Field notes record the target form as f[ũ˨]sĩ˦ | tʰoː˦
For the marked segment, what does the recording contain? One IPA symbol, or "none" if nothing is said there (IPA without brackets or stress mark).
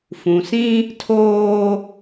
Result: ũ˨